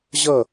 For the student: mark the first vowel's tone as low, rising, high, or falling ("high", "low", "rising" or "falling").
falling